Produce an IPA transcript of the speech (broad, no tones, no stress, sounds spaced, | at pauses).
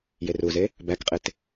j e r u z e | b æ k qʼ e t